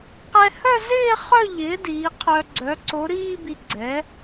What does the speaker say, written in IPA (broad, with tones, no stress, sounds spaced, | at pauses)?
q ɛ˧ h œ˥˧ z ɪː˥˧ χ œ˥˧ ʎ ɪː˩˥ d iː˩˥ qʰ œ˧ ɡ͡ǀ œ˩˥ ǀ o˩˥ ɾ iː˥˧ b i˧ ɡ͡ǀ ɛ˩˥